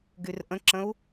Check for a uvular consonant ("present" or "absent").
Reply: absent